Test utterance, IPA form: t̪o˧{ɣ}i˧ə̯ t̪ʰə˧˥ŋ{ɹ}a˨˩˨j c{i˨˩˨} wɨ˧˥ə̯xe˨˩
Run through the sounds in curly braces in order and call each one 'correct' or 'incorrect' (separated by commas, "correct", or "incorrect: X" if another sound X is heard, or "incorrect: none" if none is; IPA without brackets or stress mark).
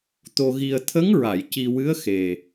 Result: correct, correct, incorrect: i˧